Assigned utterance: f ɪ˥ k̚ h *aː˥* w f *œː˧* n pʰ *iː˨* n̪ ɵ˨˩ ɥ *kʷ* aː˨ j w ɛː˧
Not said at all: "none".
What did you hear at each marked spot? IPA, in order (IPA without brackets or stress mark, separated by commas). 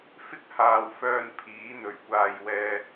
aː˨, œː˧, iː˨˥, kʷ